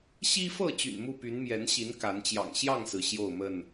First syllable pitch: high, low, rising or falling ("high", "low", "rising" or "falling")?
high